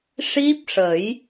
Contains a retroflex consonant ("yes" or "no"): yes